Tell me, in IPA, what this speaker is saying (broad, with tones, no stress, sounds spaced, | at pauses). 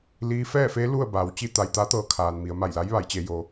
l iː˧˥ f ɛː˥˨ f eː˧˥ l u˥˨ ə̯ b aː˩˧ w t͡ɕ i˥˨ t̪ a˧ j t̪ a˧˥ t̪ ɤː˧ kʰ aː˩ n m i˩˧ ə̯ m a˧˩ j l a˧˥ j ʋ a˩˧ j t͡ɕ e˩˧ j o˩